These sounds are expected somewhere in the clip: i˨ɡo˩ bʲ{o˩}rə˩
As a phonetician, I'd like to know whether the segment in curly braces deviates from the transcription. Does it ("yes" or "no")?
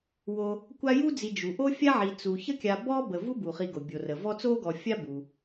no